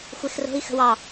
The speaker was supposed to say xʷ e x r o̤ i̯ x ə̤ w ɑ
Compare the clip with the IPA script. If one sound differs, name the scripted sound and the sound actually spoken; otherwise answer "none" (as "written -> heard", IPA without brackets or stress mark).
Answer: none